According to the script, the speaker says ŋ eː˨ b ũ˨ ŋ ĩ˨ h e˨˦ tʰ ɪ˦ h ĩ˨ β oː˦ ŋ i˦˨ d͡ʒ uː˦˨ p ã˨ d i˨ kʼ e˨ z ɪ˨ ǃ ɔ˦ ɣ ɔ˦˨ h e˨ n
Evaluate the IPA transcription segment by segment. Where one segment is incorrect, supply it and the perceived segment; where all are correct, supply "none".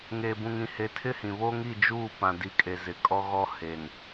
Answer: ǃ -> kʼ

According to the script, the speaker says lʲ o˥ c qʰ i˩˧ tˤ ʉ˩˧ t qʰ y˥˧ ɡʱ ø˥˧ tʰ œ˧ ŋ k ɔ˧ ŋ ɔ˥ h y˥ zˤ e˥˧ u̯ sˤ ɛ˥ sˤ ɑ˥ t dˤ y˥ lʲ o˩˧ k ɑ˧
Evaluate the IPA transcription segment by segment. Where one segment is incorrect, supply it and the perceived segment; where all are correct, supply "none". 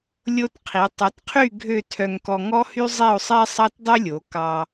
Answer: c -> t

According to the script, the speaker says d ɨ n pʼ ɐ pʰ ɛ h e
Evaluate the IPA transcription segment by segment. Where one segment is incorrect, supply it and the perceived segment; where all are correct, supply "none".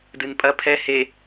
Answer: none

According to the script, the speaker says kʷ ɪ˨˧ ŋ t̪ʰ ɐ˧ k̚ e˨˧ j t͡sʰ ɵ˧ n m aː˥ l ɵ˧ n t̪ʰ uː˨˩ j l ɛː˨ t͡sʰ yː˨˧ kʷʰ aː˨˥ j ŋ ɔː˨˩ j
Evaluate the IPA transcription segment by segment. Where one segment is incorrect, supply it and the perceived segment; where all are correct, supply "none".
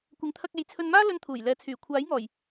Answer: yː˨˧ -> yː˨˩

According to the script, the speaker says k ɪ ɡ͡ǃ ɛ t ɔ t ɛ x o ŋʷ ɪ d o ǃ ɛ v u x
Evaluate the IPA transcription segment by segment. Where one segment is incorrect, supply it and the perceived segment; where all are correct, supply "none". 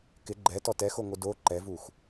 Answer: none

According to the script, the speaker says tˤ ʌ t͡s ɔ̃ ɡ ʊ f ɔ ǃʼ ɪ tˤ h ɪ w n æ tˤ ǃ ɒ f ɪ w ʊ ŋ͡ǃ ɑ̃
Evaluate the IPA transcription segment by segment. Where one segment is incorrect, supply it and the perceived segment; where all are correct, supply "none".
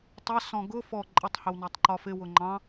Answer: t͡s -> s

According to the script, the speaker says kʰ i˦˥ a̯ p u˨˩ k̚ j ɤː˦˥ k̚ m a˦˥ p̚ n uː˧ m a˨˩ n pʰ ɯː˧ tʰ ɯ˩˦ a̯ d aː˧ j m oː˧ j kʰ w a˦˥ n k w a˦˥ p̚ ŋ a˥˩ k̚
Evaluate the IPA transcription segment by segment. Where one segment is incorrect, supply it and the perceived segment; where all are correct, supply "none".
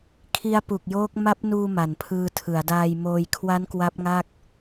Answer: ɤː˦˥ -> oː˦˥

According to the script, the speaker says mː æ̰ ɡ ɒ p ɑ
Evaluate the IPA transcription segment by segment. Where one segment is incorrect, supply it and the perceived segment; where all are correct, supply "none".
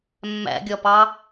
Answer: ɡ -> ɡʲ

